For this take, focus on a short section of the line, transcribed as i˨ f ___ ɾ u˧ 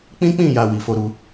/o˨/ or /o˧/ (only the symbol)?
o˧